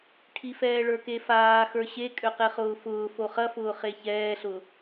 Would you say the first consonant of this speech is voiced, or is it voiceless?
voiceless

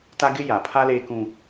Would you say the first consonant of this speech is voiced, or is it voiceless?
voiceless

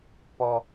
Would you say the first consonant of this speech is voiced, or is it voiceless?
voiceless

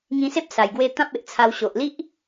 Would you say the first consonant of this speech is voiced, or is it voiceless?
voiced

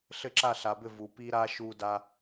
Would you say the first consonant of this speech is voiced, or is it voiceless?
voiceless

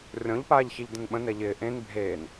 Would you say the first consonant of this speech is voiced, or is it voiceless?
voiced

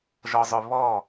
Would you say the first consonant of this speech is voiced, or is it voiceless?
voiced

